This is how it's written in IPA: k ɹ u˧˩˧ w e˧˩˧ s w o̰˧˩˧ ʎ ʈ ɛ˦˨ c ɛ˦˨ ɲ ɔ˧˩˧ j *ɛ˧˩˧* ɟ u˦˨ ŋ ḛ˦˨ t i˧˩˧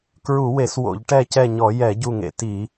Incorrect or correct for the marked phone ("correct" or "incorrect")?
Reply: correct